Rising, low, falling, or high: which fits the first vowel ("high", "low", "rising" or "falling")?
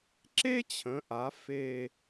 high